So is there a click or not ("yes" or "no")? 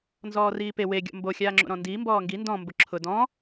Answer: yes